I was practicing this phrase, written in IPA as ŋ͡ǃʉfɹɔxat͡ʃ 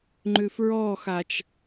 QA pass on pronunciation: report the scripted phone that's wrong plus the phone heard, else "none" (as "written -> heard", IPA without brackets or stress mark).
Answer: none